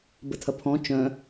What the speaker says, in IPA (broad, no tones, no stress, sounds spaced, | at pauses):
b ə tʰ ɐ pʰ ɔ̃ t͡ʃ œ̃